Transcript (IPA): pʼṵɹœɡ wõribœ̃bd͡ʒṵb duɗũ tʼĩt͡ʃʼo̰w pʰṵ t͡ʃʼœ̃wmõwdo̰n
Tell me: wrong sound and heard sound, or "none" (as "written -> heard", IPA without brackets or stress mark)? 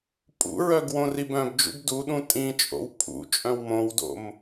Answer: n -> m